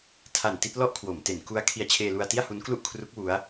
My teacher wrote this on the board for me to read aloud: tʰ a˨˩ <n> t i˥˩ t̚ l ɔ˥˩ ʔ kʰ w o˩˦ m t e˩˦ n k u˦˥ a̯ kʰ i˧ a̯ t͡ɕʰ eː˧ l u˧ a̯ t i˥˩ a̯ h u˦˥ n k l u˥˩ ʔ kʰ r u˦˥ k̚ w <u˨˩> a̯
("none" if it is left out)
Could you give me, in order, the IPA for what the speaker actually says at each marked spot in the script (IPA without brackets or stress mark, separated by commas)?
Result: n, u˦˥